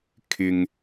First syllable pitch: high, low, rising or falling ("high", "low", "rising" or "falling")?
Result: low